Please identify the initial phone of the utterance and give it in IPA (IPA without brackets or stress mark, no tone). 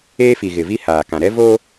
eː